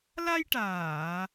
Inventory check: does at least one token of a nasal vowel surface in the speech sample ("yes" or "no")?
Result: no